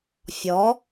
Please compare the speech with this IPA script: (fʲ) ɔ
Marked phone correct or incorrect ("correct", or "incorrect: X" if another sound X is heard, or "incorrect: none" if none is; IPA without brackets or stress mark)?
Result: correct